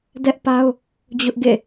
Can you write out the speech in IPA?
d ɛ˦ ʔ p a˦ ʊ̯ | d͡ʑ ʊ˦ ʔ ɡ ḛ˦˨

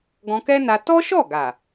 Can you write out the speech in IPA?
ɡ ɔ̃˧ k ɛ˦ n a˧ t ɔ˦ ʃ ɔ˦˨ ɡ a˨

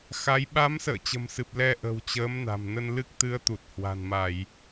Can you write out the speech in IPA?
x a˨˦ j ɓ a˨˦ m s ə̰ː˧˨ t͡ɕ ə̤˨˩ m s ɨ˨˩ p̚ l ɛ˧ ʔ ə̤˨˩ w t͡ɕ əː˨˦ m n a̤˨˩ m n ə˧ n l ɨ˦˥ k̚ t̪ ɨ˨˦ ə̯ t̪ u˨˩ t̚ h w a̤˨˩ n m a˧˩˨ j

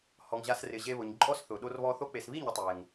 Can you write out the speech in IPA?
h ɔ˨ ŋ ʑ a˧ s r ɪ˨ ʑ e˧ β ʊ˨ ɲ ǃʼ ɔ˦ s θ ʊ˨ ɗ o˧ r β ɔ˧ θ o˧ k͡p e˨ s β i˦˨ ɲ ʊ˦ tˤ e˨ ŋ

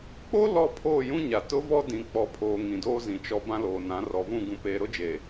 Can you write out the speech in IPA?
k͡p o˦ l ɔ˦˨ pʰ oː˦˨ j ũ˦ ɲ a˨ t ʊ˦ v ɔ˦ d ĩ˨ k͡p ɔ˨ pʰ oː˨ ŋ ĩ˨ d oː˦ z ĩ˨ t͡ʃ ɔ˨ b ã˦ l oː˨ n ã˨˦ r ɔ˨ v ũ˦˨ ɡ ũ˨ p eː˨ ɾ ʊ˦ d͡ʒ e˨

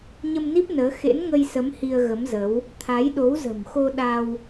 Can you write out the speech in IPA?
ɲ ə˧ m n i˦˥ p̚ n əː˨˦ x ḛ˧˥ n ŋ ə˧ j s ə˨˦ m h i˧ ə̯ ɣ ə˨˦ m z ə˨˦ w | t̪ʰ a˨˦ j ɗ o˨˦ w z ə̤˨˩ m x o˧ ɗ a˧ w

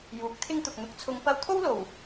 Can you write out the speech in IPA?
j uː˨˥ k̚ t̪ʰ ɪ˥ ŋ t̪ ʊ˨ k̚ n̪ ʊ˨˥ k̚ t͡sʰ ʊ˧ ŋ p ɐ˧ w t̪ʰ o˥ w l o˨˩ w

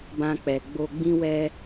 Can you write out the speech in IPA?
b ã˧ k͡p ɛ˨ ɡ͡b o˧ ɡ͡b ĩ˦ w ɛ˦

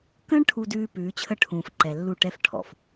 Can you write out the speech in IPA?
k ə̃ː˦ ɳ ʈʰ u˨ d ʉː˨ p ʉː˨˦ t͡ɕʰ ə˦ ʈʰ ũː˨ f ǃ ɛ˨ lː u˦˨ ʈ ɛ˦ f ʈʰ ɔ̰˨ f

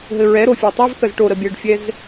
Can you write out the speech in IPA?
ɦ ɘ ɹ ɛ ɾ o fʲ ɛ tˤ ɘ v θ ə z ʈ o ɾ ə bʲ ɘ ɖ fʲ ɛ z

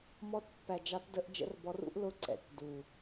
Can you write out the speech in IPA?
m ɔ˦˥ t pː æ˨˩ d͡ʒ ɑ˨˦ t d ə˨˦ ʔ d͡ʒ ə̰˨˦ r b ɔ˨˦ r ṵ˦˥ ʔ l ʊ˦˥ ǀ ɛ̰˨˩ t d u˨˩

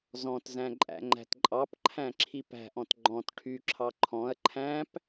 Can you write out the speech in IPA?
z ɔ̃ t z æ̃ ǃʼ æ̰ ŋ͡ǃ æ̤ t ǃʼ ɑ p ǃʰ æ̃ ǁʰ i p æ̤ ʔ ɔ̃ t ɡ͡ǃ ɔ̃ t ʈʰ y ǁʰ ɑ ǃʰ ɔ̃ ɐ̯ ǃʰ æ̃ p

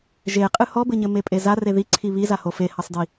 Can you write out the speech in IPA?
ʒ e qʼ ɨ h ɔ b ɘ ɲ ɘ m e pʼ e z a r e ð i ǀʰ i β i z a h o f e h ɐ sˤ d i

